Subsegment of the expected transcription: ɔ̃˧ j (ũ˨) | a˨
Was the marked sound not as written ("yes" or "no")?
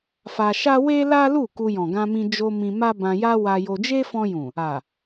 no